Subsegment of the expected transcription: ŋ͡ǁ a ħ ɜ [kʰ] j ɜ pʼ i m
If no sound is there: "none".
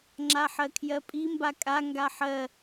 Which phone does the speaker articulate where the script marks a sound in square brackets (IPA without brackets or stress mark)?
kʰ